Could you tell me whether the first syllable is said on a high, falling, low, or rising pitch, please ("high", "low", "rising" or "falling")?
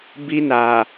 high